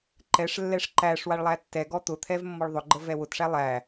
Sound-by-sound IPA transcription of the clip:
ǃɛʂlːɛʂ ǃæʂ waɭlˠætːɛɡɔ t̪ʊt̪ʰɛv mːɔɭðˤʊɡ͡ǃə vɛwʊtʂæ lˠæ

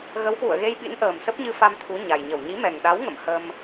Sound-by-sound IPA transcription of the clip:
ɣə˨˦whwṵ˧˨ə̯ɣe˧jɓḭ˧˥n ʔəː˨˩msə˦˥p̚ɲɨ˧fa˧m t̪ʰu˨˦ɲa˨˩jɲə˧˩w ɲi˨˦mɛ˨˩ŋɗa˨˦w ŋə̰˧˨m hə˧m

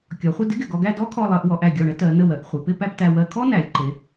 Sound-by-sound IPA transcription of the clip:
kʲɔ˩˧χʷə˥˧ dɪ˥ɡɪ˧˩ɡɔ˧ɡæ˥˧ dɔ˥kʰɔ˧lˠɜ˩˧ʔwɔ˩˧ʔ æ˧˩ɡʲɔ˧˩ɳə˥ tɜ˩˧ nə˧˩wɜ˩˧ʔ χʷe˩˧pɪ˥˧ pæ˥˧ptæ˧wɜ˧ kʰɔ˥næ˩˧lʲǃe˩˧

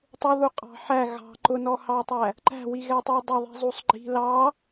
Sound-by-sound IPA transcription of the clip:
tˤʊðuqʼɑ̤ ħæ ɣɑ̤ ǃʊnɔhɑtˤæ | ǃæ̤wiɣɛtˤɪu̯ dˤʌðˤi̤zˤusˤ ɡ͡ǃi̤ lɑ

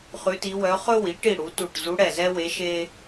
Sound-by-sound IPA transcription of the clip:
χʉ˧˥ti˧˥wœ˧˥ χɵ˥wi˩˥ʈi˦˨ ɽu˩˥tu˦˨ʈ zu˧˥ɽɛ˦˨zɛ˥we˧˥ ʃe˥

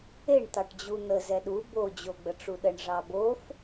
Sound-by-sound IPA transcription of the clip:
eɳ t̪ɑʈd͡ʑun̪ə zɛɗu bo d͡ʑoɡ͡bəʈ͡ʂuɗəɳ ʐɑbof

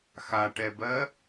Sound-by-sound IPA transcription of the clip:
xaʈɛbɜ

